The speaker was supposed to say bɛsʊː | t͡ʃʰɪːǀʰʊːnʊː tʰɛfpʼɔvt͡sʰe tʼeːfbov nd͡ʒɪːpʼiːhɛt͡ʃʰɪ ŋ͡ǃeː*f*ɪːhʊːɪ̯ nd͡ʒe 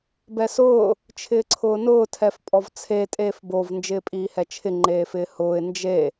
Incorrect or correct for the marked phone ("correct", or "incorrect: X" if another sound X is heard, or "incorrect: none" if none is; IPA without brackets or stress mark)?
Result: correct